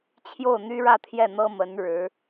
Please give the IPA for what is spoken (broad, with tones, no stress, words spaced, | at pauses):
t͡ɕʰjo˥˩ʊ̯n̪y˥ɻä˥˧t̪ʰjɛ˥˩ n̪ɤ˥mə˧˥n ɻɻ̩˧˥